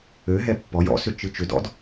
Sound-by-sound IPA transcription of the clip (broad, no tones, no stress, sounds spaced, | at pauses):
ø ɦ ɛ pː ɔ j ɔ̰ s ʏ t͡ʃ ɨ t͡ʃ ʏ d ɔ̰ d